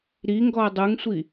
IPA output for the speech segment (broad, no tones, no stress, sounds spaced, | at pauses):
ɾ i ŋ ɡ ɔ ɐ̯ dˤ ɯ ŋ sʷ i